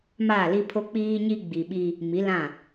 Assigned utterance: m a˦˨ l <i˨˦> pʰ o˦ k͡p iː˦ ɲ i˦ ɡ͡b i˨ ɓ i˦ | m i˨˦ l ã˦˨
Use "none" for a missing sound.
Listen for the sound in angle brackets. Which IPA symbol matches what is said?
i˦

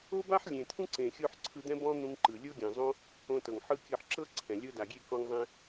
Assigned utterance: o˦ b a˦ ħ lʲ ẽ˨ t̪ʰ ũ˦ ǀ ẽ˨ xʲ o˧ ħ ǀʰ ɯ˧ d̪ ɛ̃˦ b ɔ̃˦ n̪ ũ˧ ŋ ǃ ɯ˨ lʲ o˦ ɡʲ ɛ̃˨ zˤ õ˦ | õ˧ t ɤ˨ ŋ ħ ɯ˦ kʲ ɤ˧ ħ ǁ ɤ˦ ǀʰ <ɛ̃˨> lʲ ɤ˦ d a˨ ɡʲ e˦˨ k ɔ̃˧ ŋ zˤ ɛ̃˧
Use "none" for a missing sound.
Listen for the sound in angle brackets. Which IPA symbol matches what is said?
ɛ̃˨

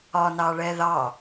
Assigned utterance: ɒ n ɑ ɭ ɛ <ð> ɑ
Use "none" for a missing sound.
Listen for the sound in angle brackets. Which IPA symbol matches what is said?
ð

